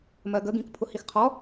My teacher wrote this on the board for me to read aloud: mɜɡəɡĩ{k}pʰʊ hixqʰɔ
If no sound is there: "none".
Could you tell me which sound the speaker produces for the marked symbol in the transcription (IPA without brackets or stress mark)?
k